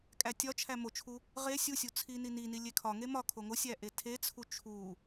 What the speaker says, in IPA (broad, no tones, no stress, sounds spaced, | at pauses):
kʼ æ tʲ ɒ t͡ʃʰ æ m o t͡ʃʰ u | ʁ e sʲ u sʲ u t͡sʰ i n i n i n i lʲ e kʰ ɒ ŋ e m ɒ kʰ o ŋ o sʲ æ ʔ e tʰ e t͡sʰ u t͡ʃʰ u